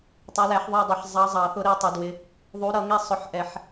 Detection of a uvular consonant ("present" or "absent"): absent